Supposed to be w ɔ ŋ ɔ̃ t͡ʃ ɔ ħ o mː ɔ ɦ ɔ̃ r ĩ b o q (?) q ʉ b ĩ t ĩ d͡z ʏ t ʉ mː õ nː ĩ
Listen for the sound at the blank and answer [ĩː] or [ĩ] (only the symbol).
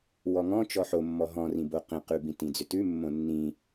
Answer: ĩ